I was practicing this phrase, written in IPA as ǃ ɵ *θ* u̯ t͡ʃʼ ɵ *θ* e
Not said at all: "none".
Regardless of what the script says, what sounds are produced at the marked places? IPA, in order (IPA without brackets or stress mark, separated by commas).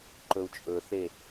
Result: none, θ